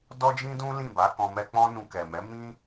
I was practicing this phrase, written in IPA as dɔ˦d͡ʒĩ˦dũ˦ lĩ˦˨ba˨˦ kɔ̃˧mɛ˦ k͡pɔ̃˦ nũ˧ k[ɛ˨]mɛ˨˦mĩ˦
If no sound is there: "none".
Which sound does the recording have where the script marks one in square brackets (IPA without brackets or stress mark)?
ɛ˨